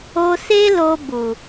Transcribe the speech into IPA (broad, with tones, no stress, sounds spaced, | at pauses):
o˧ s e˦ l o˧ b u˨